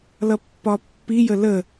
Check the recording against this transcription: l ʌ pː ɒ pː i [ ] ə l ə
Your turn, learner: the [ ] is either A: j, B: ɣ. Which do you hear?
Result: A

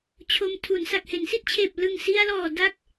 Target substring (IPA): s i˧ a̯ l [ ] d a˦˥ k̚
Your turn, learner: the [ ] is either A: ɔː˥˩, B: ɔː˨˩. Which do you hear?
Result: B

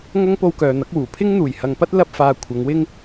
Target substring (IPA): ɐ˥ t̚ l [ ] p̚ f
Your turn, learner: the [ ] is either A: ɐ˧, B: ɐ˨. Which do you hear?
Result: A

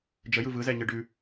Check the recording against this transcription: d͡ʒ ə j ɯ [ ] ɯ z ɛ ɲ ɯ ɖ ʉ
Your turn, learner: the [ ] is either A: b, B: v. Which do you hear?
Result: B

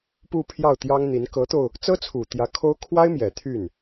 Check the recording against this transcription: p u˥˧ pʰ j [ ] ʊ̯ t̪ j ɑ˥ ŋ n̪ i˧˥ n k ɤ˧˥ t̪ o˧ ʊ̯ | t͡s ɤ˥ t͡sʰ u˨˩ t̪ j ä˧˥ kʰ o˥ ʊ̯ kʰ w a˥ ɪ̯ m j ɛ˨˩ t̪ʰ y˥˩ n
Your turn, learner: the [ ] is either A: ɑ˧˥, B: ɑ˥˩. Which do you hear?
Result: B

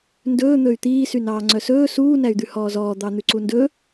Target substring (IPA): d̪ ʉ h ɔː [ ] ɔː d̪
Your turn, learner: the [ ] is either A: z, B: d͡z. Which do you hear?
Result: A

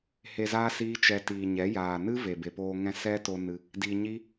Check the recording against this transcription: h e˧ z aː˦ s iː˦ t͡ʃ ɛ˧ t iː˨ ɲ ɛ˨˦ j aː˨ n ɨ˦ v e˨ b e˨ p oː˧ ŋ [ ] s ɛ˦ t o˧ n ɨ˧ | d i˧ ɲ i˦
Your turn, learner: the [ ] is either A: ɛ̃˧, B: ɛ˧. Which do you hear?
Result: A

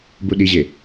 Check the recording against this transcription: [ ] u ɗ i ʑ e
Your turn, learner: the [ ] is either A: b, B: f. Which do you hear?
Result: A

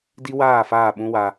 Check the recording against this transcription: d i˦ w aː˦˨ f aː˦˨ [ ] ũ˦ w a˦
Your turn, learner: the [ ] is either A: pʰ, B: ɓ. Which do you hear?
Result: B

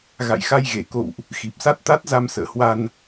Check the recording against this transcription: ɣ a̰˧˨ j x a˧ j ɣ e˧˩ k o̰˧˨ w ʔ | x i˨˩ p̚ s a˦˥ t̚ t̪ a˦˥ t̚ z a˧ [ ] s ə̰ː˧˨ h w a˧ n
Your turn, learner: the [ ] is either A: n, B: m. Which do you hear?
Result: B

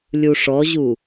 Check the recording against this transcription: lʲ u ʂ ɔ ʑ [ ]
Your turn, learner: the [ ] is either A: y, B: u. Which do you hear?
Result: B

